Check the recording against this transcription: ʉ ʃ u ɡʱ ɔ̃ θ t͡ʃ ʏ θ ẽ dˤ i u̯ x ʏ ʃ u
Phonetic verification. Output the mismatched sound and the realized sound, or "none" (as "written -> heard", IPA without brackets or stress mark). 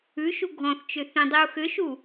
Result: none